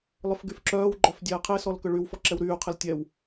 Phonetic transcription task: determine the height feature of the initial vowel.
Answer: high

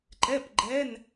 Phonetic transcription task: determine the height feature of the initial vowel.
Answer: mid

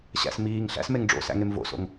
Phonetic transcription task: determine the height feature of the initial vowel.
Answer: low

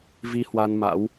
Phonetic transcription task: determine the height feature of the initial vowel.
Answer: high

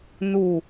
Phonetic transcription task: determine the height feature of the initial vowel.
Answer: high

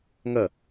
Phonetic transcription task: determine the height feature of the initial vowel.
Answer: low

